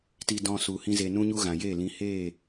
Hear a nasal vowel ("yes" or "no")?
yes